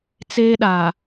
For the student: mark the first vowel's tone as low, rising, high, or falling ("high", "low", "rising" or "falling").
high